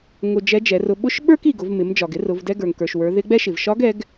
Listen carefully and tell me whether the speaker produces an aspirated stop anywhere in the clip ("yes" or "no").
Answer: no